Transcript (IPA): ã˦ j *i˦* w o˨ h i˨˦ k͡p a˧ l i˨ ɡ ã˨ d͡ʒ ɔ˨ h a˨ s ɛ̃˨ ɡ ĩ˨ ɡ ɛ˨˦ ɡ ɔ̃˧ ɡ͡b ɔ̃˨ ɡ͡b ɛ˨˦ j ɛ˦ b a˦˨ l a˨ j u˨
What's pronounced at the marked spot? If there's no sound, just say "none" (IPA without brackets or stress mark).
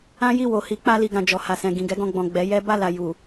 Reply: i˦˨